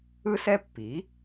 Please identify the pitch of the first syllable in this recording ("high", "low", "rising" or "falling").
high